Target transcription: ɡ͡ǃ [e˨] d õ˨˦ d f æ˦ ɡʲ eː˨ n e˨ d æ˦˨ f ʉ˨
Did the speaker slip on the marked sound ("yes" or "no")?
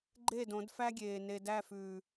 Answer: yes